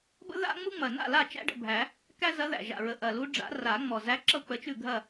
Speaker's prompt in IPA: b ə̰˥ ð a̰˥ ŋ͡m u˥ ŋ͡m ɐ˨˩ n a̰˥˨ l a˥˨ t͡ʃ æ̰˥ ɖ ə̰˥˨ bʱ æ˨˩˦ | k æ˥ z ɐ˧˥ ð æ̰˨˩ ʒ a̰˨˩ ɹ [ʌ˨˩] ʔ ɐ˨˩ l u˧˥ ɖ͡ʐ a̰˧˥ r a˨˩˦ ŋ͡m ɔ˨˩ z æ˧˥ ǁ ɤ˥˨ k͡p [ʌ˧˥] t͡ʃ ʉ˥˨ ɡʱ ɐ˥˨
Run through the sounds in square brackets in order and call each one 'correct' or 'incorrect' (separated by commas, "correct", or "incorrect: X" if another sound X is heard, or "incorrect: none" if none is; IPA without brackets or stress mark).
incorrect: ə˨˩, incorrect: ə˧˥